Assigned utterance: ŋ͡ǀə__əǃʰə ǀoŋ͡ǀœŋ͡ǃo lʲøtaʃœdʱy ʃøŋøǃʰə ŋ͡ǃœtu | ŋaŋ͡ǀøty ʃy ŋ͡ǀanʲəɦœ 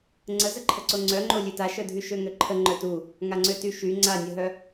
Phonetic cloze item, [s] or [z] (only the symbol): z